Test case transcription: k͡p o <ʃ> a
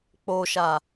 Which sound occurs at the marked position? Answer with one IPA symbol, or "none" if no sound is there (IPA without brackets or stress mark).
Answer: ʃ